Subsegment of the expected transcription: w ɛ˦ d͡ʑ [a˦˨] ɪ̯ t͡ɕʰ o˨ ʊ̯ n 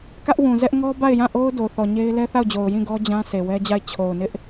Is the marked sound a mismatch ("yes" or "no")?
no